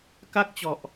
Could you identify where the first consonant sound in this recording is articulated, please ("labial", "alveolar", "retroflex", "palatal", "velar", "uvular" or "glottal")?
velar